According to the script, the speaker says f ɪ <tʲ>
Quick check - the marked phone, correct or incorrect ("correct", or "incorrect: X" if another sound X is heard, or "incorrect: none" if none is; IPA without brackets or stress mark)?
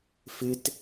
incorrect: t